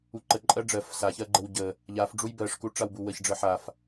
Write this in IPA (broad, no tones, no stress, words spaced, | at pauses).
uǃə ǃʼɜɖ͡ʐɜf saçɜɡ͡ǃəw ɟə | ʎaf ɖ͡ʐujbɜʂku ʈ͡ʂawbuwəç ɖ͡ʐəħaf